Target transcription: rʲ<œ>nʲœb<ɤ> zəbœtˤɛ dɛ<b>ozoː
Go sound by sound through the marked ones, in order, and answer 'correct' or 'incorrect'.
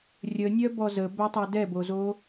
incorrect: ə, incorrect: ɔ, correct

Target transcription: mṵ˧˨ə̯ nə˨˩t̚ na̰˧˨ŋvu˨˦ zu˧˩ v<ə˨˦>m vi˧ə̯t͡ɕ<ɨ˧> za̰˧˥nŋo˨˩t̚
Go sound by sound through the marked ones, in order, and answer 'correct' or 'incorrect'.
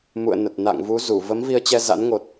correct, incorrect: ɛ˧

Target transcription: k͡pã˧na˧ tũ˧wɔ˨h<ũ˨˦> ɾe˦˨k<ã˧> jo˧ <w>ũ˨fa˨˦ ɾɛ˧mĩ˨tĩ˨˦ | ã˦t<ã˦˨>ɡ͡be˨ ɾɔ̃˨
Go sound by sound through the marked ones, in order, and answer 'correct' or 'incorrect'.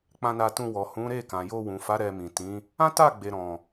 correct, incorrect: ã˨, correct, incorrect: a˦˨

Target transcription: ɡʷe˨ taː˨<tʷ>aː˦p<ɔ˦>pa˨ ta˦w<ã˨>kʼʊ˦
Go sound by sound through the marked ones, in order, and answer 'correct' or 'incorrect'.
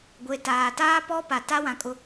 incorrect: t, correct, correct

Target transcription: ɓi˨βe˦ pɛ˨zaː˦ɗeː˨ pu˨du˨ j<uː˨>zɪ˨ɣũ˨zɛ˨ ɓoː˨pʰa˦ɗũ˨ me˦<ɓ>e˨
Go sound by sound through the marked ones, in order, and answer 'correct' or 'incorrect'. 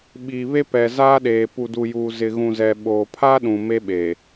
correct, correct

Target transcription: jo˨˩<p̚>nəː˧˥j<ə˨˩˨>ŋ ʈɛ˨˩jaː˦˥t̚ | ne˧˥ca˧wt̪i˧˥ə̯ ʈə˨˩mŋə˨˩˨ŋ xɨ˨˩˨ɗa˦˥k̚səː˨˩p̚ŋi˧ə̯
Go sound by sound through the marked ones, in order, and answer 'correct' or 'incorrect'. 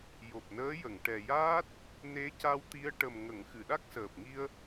correct, correct

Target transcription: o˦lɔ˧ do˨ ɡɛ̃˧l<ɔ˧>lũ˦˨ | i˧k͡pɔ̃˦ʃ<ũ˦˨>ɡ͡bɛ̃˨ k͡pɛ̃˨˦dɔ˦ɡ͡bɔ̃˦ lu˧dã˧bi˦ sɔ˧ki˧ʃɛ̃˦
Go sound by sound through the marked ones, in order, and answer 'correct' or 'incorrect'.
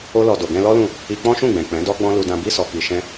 incorrect: ɔ˦, correct

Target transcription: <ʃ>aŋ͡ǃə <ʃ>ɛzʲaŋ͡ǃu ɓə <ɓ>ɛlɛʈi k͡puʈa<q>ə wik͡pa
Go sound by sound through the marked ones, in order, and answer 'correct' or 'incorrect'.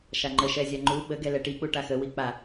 correct, correct, incorrect: ɡ, incorrect: x

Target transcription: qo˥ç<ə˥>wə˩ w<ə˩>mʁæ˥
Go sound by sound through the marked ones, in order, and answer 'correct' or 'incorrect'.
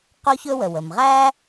incorrect: ɵ˥, correct

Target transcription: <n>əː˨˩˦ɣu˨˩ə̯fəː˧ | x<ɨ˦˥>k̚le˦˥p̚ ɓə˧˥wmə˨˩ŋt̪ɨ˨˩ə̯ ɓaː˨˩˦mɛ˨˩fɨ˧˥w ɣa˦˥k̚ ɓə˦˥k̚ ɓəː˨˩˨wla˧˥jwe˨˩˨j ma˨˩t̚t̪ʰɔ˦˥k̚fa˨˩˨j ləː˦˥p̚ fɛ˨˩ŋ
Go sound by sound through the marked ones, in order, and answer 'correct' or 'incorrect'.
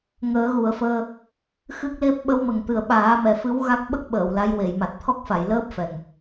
incorrect: ŋ, correct

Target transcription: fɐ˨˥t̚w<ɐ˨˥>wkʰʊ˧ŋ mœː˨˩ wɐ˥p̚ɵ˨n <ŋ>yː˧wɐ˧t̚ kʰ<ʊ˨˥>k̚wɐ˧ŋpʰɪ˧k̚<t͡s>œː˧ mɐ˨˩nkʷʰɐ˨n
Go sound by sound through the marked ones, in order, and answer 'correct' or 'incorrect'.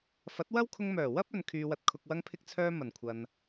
incorrect: ɐ˥, incorrect: kʰ, incorrect: ʊ˨, incorrect: t͡sʰ

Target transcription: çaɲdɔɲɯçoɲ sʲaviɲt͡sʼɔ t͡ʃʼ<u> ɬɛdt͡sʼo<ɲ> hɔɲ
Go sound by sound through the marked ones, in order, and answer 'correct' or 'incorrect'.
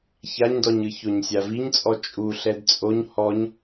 correct, correct

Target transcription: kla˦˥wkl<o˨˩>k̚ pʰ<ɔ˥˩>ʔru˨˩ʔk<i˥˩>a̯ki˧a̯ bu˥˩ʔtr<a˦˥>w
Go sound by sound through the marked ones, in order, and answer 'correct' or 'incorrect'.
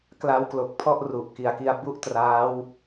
correct, correct, incorrect: i˨˩, incorrect: aː˦˥

